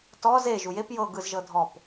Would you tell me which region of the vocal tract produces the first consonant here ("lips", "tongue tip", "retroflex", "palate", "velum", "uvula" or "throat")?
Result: tongue tip